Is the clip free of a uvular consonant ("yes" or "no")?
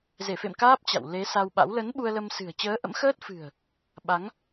yes